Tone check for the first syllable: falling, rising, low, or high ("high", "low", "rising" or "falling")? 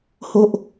high